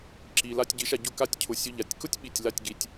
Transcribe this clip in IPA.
ǁ i˨ l a˧ tʲ ɟ i˨˦ ʃ a˧ ɟ ʊ˦ k a˧ tʲ cʰ ʊ˨ sʲ ʊ˧ ʎ a˨ tʲ k ʊ˦ tʲ ɓ i˨ tʲ l a˦˨ tʲ ɡ i˧ tʲ

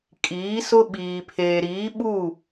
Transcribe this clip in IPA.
kʼ iː˨˦ s ʊ˦ ɓ iː˨ pʰ eː˨ ɾ iː˨˦ ɓ u˦˨

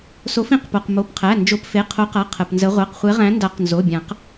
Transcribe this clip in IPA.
s o˨˦ f ĩ˨˦ q p o˩˧˩ q m o˩˧˩ p qʰ æ˩˧˩ n d͡ʒ o˨˦ p f e˩˧˩ qʰ o˨˦ q a˩˧˩ qʰ ə˩˧˩ p n z ə˨˦ ʁʷ a˩˧˩ q χʷ e˨˦ ʁ æ̃˨˦ n d a˨˩˦ q n z o˩˧˩ bʲ ã˨˩˦ q

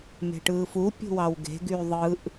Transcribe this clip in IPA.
m e̤ ʈ ɯː f u pʲ ṳ w ɑ w ɡ e̤ ɡ y ðˤ ɯ ʔ

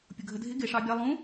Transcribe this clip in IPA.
pʲ ʊ ɡʱ ə dʱ ɪ ɡ ɪ ʂ ɑ bʲ ɑ lˠ ũ

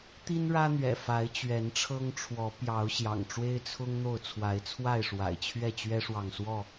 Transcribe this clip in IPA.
t̪ i˦ n ɻ ä˦ n̪ ɥ ɛ̰˨˩ f a˨˦ ɪ̯ t͡ɕ ɥ ɛ˨˦ n ʈ͡ʂʰ ɤ˦ ŋ ʈ͡ʂʰ w ɔ˨˦ p j ɑ˨˦ ʊ̯ ɕ j ɑ̰˨˩ ŋ ʈ͡ʂ w e˦ ɪ̯ t͡sʰ ʊ˦ ŋ n̪ o˥˨ ʊ̯ t͡sʰ w a˨˦ ɪ̯ t͡sʰ w a˥˨ ɪ̯ ʂ w a̰˨˩ ɪ̯ t͡ɕʰ ɥ ɛ˥˨ t͡ɕ ɥ ɛ˦ ʂ w ɑ˨ ŋ s w ɔ˥˨

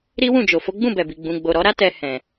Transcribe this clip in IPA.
ɾ i˦ w ũ˦˨ d͡ʒ o˨ f o˨˦ ɡ͡b ũ˦˨ b ɛ˨ b i˨ ɡ͡b ũ˨ ɡ͡b o˨ ɾ ɔ˨˦ ɾ a˦ t ɛ˧ h ɛ̃˨

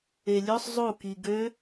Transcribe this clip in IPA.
e lʲ ø sˤ zˤ u k i ɡ ø

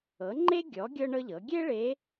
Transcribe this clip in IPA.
ɤ˩˥ ŋ͡ǃ e˥ ɡʲ ɔ˩˥ ɡʲ ɤ˥ ɳ ɤ˥ ʎ ɤ˩˥ ɡʲ e˥ ɭ e˧˥

